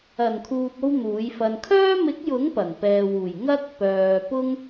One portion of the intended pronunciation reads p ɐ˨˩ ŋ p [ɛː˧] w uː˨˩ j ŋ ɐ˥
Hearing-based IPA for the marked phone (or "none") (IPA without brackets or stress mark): ɛː˨